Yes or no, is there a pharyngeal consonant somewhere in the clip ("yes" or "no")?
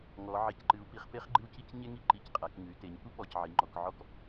yes